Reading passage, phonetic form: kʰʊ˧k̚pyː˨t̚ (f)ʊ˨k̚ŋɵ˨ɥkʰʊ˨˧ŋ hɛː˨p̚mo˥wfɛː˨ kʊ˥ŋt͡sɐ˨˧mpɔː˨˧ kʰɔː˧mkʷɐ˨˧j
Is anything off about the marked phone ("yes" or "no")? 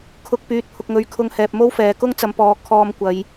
yes